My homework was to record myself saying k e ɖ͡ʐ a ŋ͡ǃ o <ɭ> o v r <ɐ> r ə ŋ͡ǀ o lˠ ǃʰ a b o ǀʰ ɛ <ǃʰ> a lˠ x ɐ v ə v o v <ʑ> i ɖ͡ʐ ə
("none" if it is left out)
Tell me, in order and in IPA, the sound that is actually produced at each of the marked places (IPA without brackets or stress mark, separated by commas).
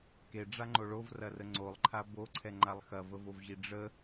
ɭ, ɐ, ŋ͡ǃ, ʑ